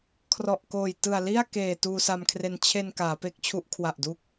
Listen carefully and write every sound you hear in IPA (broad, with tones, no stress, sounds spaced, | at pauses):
kʰ r ɔ˨˩ ʔ k oː˨˩ j t ɯ˨˩ a̯ l i˥˩ a̯ k eː˨˩ t uː˧ s a˧ m kʰ r e˧ n t͡ɕʰ e˧ n k aː˩˦ p e˦˥ k̚ t͡ɕʰ u˦˥ ʔ kʰ w a˨˩ ʔ d u˦˥ k̚